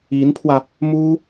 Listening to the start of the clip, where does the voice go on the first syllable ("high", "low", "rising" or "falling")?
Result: rising